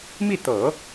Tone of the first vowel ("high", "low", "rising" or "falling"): falling